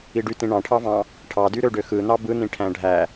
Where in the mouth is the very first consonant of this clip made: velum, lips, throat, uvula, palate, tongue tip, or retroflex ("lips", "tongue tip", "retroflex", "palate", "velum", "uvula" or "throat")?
retroflex